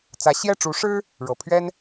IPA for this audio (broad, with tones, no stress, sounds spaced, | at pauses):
t͡s ä˧˥ ɕ j ɛ˥˩ ʈ͡ʂ u˧˥ ʂ ɻ̩˥ | ɻ ɤ˨˩ pʰ ɥ ɛ˥ n